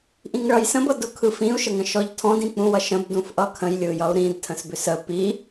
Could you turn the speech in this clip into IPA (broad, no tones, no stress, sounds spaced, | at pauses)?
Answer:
ʔ ĩ ŋ ɭ ʌ j s ə̃ b ʌ d ʊ kʰ ɯ f ĩ u̯ ʃ ə ŋ ə̃ ʃ ɔ ʎ tʰ ɔ̃ d ĩ k͡p ũ w ʌ ʃ ə̃ b d ũ f ʔ ʌ kʰ ə̃ j lʲ ɯ j ʌ u̯ ɾ ĩ d tʰ ə̃ s b ʏ s ə p i